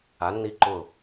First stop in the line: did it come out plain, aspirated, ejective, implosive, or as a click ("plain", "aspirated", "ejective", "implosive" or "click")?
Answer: click